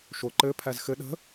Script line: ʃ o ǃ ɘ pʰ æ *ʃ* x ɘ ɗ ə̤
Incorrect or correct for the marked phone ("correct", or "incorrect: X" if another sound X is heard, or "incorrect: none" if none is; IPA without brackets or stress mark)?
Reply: incorrect: z